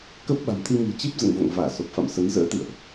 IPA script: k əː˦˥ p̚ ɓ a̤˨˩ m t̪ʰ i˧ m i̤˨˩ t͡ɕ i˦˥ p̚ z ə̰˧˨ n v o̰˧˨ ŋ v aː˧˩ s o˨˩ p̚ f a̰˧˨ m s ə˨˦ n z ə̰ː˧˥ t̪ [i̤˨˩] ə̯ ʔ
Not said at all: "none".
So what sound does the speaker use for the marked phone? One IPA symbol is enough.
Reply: ḭ˧˨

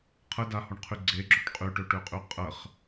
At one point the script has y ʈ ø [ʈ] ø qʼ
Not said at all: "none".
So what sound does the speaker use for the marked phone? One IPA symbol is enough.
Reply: ʈ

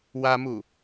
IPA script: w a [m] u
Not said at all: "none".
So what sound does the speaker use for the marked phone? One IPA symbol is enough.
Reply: m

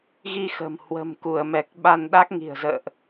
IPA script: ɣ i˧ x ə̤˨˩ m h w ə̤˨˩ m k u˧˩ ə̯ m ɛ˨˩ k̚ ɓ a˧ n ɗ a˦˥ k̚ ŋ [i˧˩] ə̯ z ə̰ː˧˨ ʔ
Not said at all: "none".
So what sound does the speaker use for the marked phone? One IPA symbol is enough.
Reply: i̤˨˩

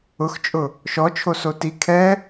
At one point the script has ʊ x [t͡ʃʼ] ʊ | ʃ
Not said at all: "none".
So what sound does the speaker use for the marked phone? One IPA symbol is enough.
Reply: t͡ʃʼ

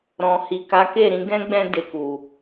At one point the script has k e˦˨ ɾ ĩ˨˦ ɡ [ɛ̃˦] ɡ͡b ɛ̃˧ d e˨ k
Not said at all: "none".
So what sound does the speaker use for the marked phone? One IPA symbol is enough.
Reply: ɛ̃˦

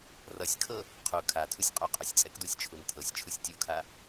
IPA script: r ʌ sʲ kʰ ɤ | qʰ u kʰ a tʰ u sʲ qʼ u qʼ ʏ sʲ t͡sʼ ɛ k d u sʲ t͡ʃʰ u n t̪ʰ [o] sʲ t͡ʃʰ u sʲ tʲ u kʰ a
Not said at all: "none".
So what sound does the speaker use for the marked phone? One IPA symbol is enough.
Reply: ɤ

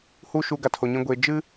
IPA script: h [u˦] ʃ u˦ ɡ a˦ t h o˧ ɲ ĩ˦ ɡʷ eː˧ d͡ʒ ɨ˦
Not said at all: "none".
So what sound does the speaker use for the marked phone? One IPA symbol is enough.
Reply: u˦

